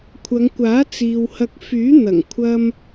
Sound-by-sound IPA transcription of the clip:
kʷʰ ɐ˨˧ ŋ kʷ aː˨˥ t͡s iː˨ w h ɐ˧ k̚ f yː˨˥ n̪ ɐ˨˩ ŋ kʷʰ ɐ˥ m

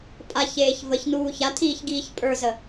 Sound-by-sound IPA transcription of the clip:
pʼ a ç eː ç v ə ç n uː ç a tʰ iː ç ɡ iː ç pʼ ə˞ z ə

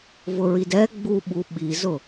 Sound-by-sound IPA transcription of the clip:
v ʊ ɹ i d ɛ ɡ͡b u ɓ u ɓ i z ʊ

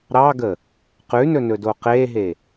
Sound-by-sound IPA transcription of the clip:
ɾ ɑ ɡ ə | q ʉ n ɵ n ɵ d o q e ɦ e

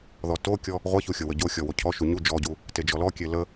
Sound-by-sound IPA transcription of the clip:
ð ɔ t o kʲ ɔ | ʁʷ ɐ ç u xʲ o w ə ɟ o xʲ ɔ w o cʰ ɔ ʃ u ɲ u d͡ʒ ɔ ɟ u | t e d͡ʒ ɔ l ɔ kʲ e l ə

